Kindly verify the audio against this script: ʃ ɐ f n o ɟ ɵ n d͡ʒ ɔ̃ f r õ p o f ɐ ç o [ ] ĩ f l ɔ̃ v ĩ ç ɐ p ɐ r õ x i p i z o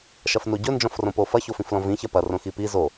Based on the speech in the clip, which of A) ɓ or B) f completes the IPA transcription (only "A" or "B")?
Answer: B